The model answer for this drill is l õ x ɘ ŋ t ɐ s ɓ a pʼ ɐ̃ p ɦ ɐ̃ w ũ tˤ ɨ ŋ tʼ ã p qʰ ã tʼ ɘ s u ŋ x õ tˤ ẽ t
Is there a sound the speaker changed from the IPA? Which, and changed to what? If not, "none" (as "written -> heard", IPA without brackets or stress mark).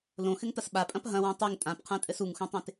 none